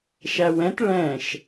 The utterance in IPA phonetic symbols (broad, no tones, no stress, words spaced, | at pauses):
ʃæwɛ̃t ɭɛ̃ʃ